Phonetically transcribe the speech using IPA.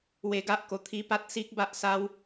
w e˧ ɡ a˦ ʔ k o˨˩ t̪ʰ i˧ p a˦ t̚ s i˦ k̚ b a˦ ʔ s a˦ w

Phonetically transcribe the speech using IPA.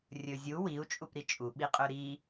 rʲ ɵ zʲ u w i u̯ t͡ʃʼ u p ɾ i t͡ʃʼ u ɓ i qʼ ɵ ɾ i

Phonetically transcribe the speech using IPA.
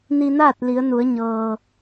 n i˧ n aː˥˨ t̚ l i˩˧ ə̯ n u˩˧ ə̯ ɲ ɤː˩

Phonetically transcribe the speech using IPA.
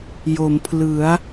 j o˩˦ m pʰ l ɯ˩˦ a̯

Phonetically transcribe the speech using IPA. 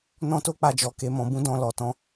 n ɔ̃˦ t o˦ k͡p a˧ d͡ʒ ɔ˨ k e˨˦ m ɔ̃˧ b ũ˦ d ɔ̃˧ l ɔ˨ t ɔ̃˧

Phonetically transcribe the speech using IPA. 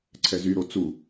ǀʰ ɛ z y ɾ o t͡s u

